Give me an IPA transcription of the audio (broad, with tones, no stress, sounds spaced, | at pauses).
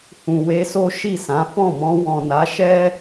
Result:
h ũ˨ w e˧ s o˦ ʃ i˦˨ s ã˨˦ f ɔ̃˦˨ m ɔ̃˧ w ɔ̃˨ n a˨˦ ʃ ɛ˦